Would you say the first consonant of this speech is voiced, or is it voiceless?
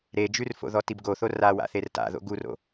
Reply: voiced